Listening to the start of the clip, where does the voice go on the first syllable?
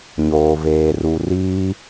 low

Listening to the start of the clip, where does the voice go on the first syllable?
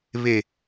low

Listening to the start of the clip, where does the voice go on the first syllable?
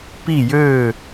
falling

